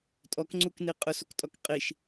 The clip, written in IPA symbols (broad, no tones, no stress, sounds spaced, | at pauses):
tʼ ɔ k ŋ͡ǀ u k n i qʼ ʊ s o k tʼ ɔ k qʼ i ʃ